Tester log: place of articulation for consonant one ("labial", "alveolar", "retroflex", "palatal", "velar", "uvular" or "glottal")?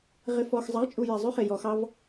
uvular